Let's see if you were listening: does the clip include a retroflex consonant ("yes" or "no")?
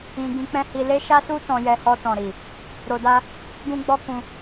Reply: no